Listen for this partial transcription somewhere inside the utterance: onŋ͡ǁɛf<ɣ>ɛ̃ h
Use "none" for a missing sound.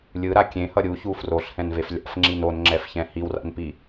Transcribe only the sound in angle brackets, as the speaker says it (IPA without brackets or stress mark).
ç